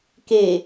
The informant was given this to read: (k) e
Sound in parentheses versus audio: correct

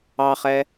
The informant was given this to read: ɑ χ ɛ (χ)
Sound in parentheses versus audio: incorrect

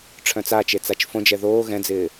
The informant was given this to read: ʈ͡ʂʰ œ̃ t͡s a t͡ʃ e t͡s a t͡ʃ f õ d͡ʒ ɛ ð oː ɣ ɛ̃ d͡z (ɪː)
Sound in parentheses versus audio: correct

